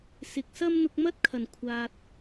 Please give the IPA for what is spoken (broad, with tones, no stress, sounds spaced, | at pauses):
s ɪ˨ k̚ s ɐ˥ m n̪ ʊ˧ k̚ m ɐ˥ t̚ kʰ ɐ˨˩ n kʷʰ aː˨ t̚